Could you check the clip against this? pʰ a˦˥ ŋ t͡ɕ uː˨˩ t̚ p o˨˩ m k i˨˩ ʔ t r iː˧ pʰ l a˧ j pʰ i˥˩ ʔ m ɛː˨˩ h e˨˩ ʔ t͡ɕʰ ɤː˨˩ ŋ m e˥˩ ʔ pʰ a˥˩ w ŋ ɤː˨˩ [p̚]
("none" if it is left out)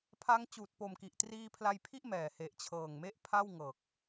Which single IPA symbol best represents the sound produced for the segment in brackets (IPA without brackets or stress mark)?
k̚